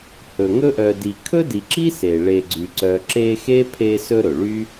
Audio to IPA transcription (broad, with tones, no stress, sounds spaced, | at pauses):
h ɵ˩ ŋ ɵ˥ ʔ œ˨ d i˨ kʰ ɵ˥ d i˨ ǁ i˥ s e˩ ɭ e˨ ɡ͡ǀ y˩ ǀ œ˨ ǁ e˦ x e˥ pʰ e˦ s ɵ˦ ɾ ɵ˩ ɭ y˥